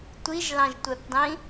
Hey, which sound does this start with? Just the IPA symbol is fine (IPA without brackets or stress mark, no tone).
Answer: tʷ